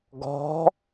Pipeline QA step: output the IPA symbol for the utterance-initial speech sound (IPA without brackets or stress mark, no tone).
ɡ